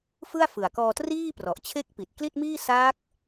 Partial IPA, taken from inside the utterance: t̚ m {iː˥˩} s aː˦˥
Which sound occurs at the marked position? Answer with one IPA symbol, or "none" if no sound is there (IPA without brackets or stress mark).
iː˥˩